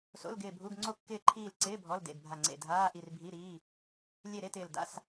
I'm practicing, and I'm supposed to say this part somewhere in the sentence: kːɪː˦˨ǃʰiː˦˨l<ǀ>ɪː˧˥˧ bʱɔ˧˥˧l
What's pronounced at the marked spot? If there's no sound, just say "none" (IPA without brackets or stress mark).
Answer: ǀ